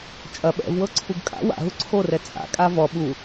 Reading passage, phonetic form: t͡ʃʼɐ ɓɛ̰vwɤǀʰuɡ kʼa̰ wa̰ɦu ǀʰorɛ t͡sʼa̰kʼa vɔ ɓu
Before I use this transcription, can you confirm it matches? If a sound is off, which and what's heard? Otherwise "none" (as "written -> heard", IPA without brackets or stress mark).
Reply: none